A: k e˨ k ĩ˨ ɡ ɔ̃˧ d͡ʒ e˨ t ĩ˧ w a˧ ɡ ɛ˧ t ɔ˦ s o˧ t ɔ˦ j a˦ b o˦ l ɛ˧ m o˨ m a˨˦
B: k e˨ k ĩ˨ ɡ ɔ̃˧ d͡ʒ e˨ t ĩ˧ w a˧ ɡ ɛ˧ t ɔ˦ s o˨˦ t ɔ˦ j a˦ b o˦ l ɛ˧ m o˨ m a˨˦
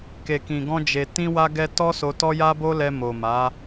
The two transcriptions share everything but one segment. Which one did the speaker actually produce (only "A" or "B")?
A